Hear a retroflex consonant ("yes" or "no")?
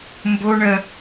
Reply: yes